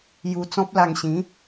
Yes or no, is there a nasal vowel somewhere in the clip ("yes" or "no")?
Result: yes